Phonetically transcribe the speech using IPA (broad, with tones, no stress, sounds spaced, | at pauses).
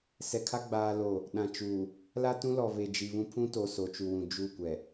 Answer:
s ɛ˨ kʰ a˦ ɡ͡b aː˦ l o˦˨ | ɗ ã˨ t͡ʃ uː˨ | l a˦ t ũ˦ l ɔ˨ β e˨ d͡ʒ i˨ β ũ˦ pʰ ũ˦ t o˨ s o˨ t͡ʃ u˨ w ũ˨ d͡ʒ u˦˨ kʷ ɛ˨